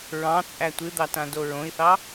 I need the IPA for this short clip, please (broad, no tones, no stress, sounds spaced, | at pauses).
ɹ ɑ̃ t͡sʼ æ tʷ ɨ d̪ ɑ t ã d o ɹ õ i̯ θ ɑ